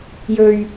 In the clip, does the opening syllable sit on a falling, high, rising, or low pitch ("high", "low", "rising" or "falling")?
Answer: low